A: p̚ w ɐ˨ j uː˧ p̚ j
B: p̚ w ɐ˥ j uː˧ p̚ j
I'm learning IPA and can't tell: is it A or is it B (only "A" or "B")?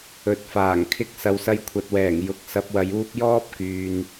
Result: A